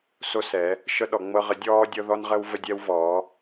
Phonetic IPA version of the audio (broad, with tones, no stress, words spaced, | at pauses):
so˧ sɛ˩˧ | ʃɤ˧ɗɔ˩˧ŋ͡mɤ˧ ʁə˩˧ dʲɔː˧dʲɤ˧ðɔ˧nʁə˧w və˧dʲɛ˧wvɔː˩˧